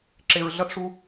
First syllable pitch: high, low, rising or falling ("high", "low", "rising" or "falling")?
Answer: low